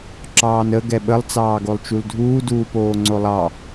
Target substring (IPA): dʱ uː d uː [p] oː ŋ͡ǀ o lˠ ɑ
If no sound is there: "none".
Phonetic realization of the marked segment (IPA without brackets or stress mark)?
p